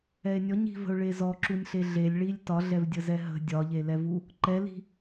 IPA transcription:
ɛ e̯ nʲ ɔ ɲ i̤ v ə̤ o̯ ɭ e z ɔ ǁ u nʲ ɬ e ɮ e lʲ ɭ i lʲ t ɒ ɮ ɛ v dʲ ə z ɛ ɦ ə̤ dʲ ɒ ʎ e l ɛ v u | ǃ ɛ l i̤

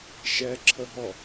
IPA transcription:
ʃ ɛ ǁʰ ə ɦ ɔ

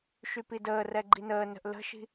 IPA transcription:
ʃ y p i d əː r ɛ ɡ͡ǃ i n əː n ə̤ ʔ l ə̤ ʃ i̤

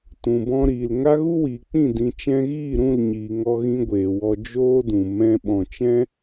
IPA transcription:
t ũ˨ b ɔ̃˧ ɾ iː˨ l ŋ a˦ ɣ u˦ w iː˨ k͡p ĩ˦˨ d ĩ˨ t͡ʃ ɛ̃˧ ɣ iː˦˨ ɾ ũ˦˨ l ɲ iː˨ ŋ ɔ˧ ɣ ĩ˧ ɡʷ eː˨ w ɔ˧ d͡ʒ oː˦ d ũ˨ m ɛ̃˧ ɓ ɔ̃˨ t͡ʃ ɛ̃˦

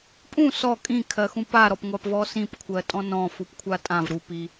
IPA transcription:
pʼ ũ s ɔ kʼ ĩ kʰ ɜ x ũ p a ɾ ɔ p ŋʷ a p v ɔ s ĩ p kʷʰ ɜ tʼ ɔ̃ n ɔ̃ f u p kʷʰ a tʼ ã v ɾ u p i

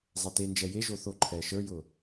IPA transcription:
zˤ ɛ t e n d͡ʒ ɛ j e ʒ o θ o ǃʰ ɛː ʃ ə˞ j ʊː

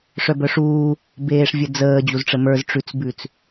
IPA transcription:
ʂ œ b œ ʂ uː | b eː ʂ vʲ ə d͡z əː d͡ʑ u z ʈ͡ʂ ə m ə˞ z ʈ͡ʂ ʉ t͡s b ʉ t͡s

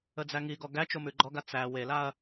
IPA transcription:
ə d͡z æ ŋ i ɡ ɔ ɡ æ t͡ʃ o m ʉ ɡ͡ǃ ɔ ɡ a t͡s æ w e l a ɐ̯

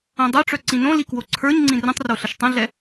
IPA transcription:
õ dˤ œ ʈ͡ʂ œ ǀ ĩ n õ l i k w o ǀʰ ə˞ ɲ ŋ͡ǀ ĩ r ə̃ tˤ r o ɬ ə ʃ tˤ ə̃ ɮ ɛ

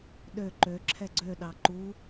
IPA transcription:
ɗ ø ǃ ø ǁʰ ɛ ɡ͡ǀ ø ɗ ɑ ǃ u

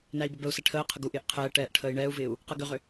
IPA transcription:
n æ i̯ b ə b ə u̯ s ɛ ʈʰ əː qʰ ə ɡ u ʔ ɪː ʔ qʰ ɛː ʈ ɛː ʔ ʈʰ əː i̯ ɳ ɛː u̯ v ɪː u̯ | q ə ɡ ʏ ʁ ʏ

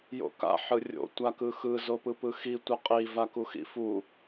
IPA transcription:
j o̰ k a̰ ħ ɯ rʲ o̰ tʷ a k ɯ x ɯ z o p ɯ p ɯ x i tʷ ʌ qʼ i v a k u x ḭ f u

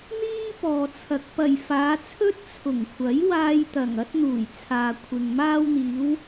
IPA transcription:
n̪ iː˥ p ɔː˨ t͡sʰ ɐ˨ k̚ p ɐ˨˩ j f aː˨˧ t͡sʰ ɵ˥ t̚ t͡sʰ ʊ˨˩ ŋ kʷʰ ɐ˨˥ j w aː˧ j t̪ ɐ˨˩ ŋ ɐ˥ t̚ n̪ uː˨˩ j t͡sʰ aː˨ kʷʰ ɪ˨ ŋ m aː˧ w n̪ iː˨˧ w

